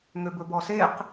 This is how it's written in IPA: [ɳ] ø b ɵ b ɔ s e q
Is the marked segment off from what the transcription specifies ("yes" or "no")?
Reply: yes